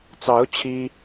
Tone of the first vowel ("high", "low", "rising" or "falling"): rising